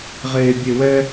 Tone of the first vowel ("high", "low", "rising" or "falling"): high